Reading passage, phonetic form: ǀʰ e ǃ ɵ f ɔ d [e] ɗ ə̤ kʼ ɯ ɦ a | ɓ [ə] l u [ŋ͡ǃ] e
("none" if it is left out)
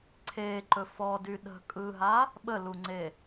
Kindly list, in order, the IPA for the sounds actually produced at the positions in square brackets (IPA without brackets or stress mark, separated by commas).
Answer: y, ə, ŋ͡ǀ